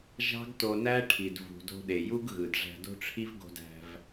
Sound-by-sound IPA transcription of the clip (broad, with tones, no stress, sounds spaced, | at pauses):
ʒ ɑ̤˦ ɡ t o˧ n æ˦ ʈʰ i˨ d v ṳ˨ d o̤˧ ɗ e˨ j u˦ ɡ ɣ ɯ˨ d ʐ æ̤˧ d o̤˦ ʈ͡ʂʰ i˦ v ɡ o̤˧ d æ̤˧ v